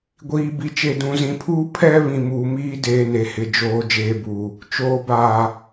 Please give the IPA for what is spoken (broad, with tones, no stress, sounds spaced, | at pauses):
ɡʷ iː˨ b i˨ t͡ʃ e˨ d ũ˨ z ĩ˨ pʰ uː˦ pʰ ɛ˦ β ĩ˨ m uː˨ m iː˦ d eː˨ n e˨ h ɪ˨ d͡ʒ oː˨ d͡ʒ eː˨ b uː˨ | t͡ʃ oː˨ b aː˨